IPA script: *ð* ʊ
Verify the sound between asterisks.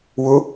incorrect: w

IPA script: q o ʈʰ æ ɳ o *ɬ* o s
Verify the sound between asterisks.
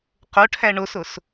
incorrect: s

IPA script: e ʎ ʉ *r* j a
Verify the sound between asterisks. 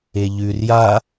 correct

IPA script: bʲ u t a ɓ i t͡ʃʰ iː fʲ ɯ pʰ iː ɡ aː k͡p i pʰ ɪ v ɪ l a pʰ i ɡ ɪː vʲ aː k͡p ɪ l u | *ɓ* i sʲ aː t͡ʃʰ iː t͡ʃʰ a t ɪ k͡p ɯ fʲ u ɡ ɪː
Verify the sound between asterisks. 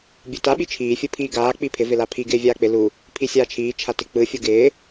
incorrect: pʰ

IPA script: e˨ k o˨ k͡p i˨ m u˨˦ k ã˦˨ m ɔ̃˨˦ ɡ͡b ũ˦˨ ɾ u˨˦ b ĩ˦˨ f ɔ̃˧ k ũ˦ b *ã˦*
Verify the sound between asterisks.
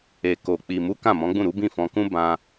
incorrect: ã˧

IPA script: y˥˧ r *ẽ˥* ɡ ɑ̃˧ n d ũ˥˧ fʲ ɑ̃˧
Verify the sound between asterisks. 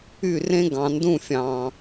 correct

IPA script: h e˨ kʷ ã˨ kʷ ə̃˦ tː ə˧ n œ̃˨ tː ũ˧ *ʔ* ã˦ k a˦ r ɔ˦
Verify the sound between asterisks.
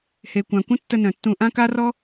correct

